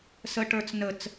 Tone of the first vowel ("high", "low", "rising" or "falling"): high